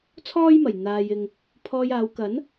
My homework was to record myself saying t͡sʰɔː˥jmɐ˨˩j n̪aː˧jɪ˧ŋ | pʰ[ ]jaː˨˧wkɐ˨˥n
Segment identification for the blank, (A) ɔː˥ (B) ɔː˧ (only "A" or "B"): B